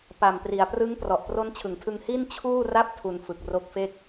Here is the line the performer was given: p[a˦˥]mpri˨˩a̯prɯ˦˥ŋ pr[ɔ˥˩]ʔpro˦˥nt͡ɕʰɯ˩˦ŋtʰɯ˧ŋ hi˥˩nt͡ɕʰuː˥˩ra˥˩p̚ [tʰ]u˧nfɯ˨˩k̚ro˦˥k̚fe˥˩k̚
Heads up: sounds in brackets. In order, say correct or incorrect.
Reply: incorrect: a˨˩, incorrect: ɔ˨˩, correct

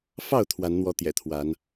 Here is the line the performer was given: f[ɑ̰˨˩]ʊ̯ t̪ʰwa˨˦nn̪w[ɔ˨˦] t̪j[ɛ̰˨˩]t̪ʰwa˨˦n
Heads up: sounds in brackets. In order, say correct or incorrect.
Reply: incorrect: ɑ˥˨, correct, correct

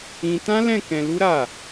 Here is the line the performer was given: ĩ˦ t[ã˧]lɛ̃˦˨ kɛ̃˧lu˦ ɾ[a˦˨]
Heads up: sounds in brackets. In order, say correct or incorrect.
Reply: incorrect: ã˦, correct

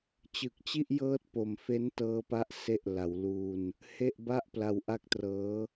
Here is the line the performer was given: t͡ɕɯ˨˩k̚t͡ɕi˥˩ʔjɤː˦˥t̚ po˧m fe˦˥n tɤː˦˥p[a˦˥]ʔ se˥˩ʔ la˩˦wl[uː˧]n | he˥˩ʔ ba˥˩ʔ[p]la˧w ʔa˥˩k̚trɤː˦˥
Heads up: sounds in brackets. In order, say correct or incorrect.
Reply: correct, correct, correct

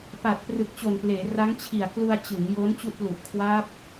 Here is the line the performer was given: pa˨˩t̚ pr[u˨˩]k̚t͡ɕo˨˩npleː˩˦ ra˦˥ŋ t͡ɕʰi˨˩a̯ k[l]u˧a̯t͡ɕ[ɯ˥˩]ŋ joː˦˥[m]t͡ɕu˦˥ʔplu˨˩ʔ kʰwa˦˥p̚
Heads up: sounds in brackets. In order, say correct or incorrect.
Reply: incorrect: ɯ˨˩, correct, incorrect: ɯ˩˦, incorrect: n

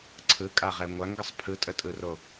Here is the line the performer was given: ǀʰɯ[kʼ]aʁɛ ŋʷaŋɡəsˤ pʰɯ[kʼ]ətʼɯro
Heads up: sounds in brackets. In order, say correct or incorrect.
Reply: correct, incorrect: tʼ

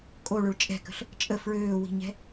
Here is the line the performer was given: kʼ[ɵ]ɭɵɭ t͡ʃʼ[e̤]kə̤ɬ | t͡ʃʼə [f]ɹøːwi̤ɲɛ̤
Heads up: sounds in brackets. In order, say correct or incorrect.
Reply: incorrect: o, incorrect: ɛ̤, correct

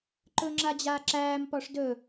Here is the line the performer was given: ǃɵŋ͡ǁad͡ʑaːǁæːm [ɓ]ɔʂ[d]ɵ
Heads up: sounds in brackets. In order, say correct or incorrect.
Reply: incorrect: p, correct

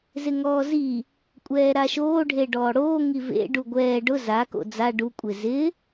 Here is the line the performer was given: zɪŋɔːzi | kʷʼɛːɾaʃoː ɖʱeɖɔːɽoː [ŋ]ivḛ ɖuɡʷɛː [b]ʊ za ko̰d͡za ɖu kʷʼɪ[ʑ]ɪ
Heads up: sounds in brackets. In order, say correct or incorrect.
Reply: correct, incorrect: ɖ, incorrect: z

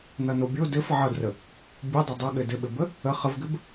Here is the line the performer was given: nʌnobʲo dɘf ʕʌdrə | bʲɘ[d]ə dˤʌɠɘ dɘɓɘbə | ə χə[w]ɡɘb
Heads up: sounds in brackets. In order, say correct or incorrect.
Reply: incorrect: dˤ, incorrect: v

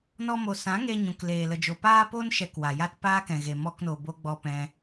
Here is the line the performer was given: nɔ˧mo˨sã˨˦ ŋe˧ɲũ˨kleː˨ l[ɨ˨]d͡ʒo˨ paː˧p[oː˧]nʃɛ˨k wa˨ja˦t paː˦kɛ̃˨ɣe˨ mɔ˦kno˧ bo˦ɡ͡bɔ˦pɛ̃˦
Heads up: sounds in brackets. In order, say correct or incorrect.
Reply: incorrect: ə˨, incorrect: o˧

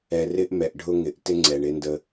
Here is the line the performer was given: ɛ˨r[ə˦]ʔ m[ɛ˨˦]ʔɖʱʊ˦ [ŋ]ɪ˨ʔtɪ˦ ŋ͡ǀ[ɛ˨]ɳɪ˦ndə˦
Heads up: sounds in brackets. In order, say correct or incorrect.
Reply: incorrect: ɪ˦, incorrect: ɛ˨, correct, correct

